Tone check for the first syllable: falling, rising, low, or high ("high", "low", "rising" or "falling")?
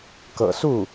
low